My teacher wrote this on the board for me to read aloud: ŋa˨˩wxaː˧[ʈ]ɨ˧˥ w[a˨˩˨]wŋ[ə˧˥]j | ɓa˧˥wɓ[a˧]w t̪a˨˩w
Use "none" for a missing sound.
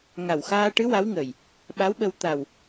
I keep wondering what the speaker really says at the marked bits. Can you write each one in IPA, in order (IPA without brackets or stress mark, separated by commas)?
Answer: ʈ, a˧˥, ə˨˩, ə˧